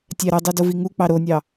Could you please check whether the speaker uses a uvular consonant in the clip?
no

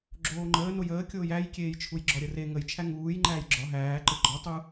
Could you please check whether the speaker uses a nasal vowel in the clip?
no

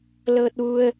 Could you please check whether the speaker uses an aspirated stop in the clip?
no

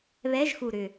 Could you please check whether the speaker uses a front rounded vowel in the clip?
yes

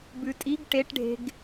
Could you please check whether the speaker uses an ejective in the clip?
yes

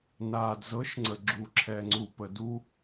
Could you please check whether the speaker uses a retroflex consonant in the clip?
no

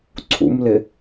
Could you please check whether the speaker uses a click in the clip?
yes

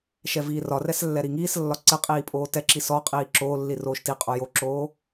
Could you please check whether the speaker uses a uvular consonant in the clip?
yes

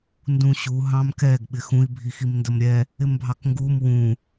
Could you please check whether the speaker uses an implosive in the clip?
yes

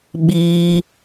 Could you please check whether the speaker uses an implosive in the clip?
yes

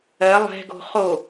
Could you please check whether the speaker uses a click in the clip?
no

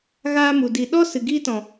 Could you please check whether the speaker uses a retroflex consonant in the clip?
no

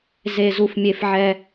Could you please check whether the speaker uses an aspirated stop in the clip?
no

